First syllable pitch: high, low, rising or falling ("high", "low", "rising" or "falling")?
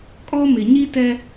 high